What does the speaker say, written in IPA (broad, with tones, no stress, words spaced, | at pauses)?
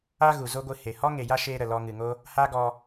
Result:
a˧ ɣu˧ zo˦ɡʷɨ˧ he˧ hɔ˦ ŋe˨ja˦ ʃeː˧ ɾə˨ lɔ˧ŋɨ˨ŋo˦ | ha˦ɡɔ˧